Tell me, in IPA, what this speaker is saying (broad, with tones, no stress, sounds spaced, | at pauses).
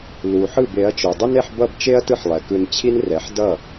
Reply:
l u˩ ħ ɯ˥˩ b e˩˥ ɐ̯ t͡ʃ o˩ dˤ ʌ˥ n e˥ ħ b ʌ˥˩ b t͡ʃ e˥ ɐ̯ t ɯ˥ ħ lˠ ɛ˩ k ɯ˧ n t͡ɕʰ i˥ n r ɛ˩˥ ħ d ʌ˥˩